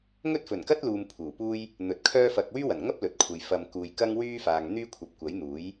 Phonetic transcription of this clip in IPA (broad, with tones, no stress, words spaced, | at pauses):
ŋɵ˥t̚fɵ˨˩nkɐ˥t̚luː˨m pʰuː˨˩puː˥j | n̪ɵ˨˥t̚kʰœː˥fɐ˧k̚ wyː˥wɐ˨˩nŋɐ˥p̚ lɵ˨t̚kʷʰɐ˨j fɐ˨m kuː˨jkɐ˥ŋ wyː˥faː˨ŋ n̪yː˥kʷʰɐ˨p̚kʷɐ˨˥j n̪uː˨˥j